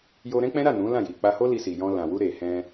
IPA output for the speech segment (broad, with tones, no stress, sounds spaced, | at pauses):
j o˧ ɾ ɛ̃˦ k͡p ɛ̃˦ ɾ a˦˨ n ũ˨˦ l ã˦˨ j i˨ k͡p a˧ h o˦ l i˧ s i˨ j ɔ̃˧ l ã˨ w u˧ ɾ e˨ h ɛ̃˧